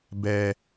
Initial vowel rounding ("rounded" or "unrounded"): unrounded